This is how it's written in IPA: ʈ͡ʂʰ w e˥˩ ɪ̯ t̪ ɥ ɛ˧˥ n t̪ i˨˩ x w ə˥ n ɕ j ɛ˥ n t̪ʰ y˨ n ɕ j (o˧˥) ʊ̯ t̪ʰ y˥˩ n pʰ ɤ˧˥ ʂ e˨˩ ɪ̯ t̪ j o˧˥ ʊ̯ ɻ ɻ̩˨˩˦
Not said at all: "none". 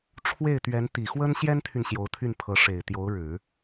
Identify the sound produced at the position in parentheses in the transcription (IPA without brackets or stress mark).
o˧˥